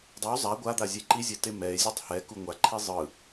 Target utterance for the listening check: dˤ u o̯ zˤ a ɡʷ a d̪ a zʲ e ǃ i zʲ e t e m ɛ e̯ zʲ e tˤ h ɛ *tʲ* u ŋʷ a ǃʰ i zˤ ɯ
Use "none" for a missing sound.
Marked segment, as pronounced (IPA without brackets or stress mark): k